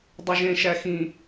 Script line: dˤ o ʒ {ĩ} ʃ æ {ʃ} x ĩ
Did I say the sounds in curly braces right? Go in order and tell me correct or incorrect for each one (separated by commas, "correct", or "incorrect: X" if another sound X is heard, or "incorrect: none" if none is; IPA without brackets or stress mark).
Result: incorrect: ẽ, incorrect: none